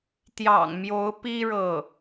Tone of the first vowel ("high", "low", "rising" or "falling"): low